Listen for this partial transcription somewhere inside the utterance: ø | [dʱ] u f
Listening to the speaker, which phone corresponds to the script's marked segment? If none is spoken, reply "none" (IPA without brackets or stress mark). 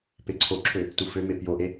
t